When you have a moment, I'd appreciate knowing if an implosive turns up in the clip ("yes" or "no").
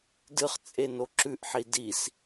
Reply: no